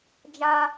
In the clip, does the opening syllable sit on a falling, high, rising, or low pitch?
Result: high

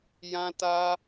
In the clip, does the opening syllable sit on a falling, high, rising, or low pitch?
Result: high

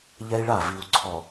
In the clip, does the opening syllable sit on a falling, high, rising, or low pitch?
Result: high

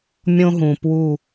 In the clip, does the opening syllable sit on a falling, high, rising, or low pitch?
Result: high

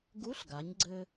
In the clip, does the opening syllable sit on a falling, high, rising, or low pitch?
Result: rising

